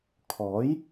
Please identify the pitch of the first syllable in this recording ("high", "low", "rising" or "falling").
rising